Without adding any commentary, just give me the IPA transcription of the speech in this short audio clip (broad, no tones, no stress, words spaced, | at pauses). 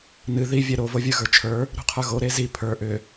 nɨ ði vʲɛɾo vovʲə˞ɣə˞t͡ʃʰə˞ | ɾṳqʰə˞ɣo ɾezi pʰə˞ ʔʏ